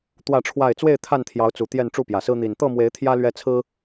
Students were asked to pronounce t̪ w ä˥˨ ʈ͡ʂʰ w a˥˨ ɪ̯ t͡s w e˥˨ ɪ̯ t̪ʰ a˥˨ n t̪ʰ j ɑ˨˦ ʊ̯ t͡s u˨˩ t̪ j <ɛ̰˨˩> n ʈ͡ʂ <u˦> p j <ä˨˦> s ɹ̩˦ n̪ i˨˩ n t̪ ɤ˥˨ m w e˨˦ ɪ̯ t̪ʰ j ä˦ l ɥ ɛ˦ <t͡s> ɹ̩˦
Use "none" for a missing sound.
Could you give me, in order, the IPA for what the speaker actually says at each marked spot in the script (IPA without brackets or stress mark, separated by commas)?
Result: ɛ˥˨, u˥˨, ä˨˩, t͡sʰ